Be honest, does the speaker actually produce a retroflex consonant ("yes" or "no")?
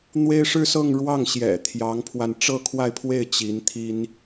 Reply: yes